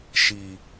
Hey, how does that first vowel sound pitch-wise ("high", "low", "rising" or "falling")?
low